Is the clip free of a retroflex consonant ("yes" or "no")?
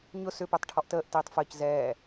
no